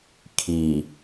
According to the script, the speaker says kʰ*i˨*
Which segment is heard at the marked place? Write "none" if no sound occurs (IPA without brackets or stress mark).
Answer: i˨